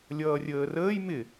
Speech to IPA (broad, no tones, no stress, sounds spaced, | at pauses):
lʲ ʌː rʲ əː r əː j m ɪ